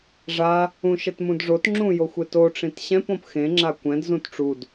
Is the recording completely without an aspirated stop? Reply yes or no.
yes